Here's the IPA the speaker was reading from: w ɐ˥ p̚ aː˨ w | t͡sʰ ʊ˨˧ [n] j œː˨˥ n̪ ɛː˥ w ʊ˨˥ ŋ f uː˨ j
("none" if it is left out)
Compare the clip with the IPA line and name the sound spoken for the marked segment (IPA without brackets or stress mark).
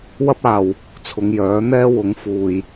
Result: ŋ